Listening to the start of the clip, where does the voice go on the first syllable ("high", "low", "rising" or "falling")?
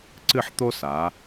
falling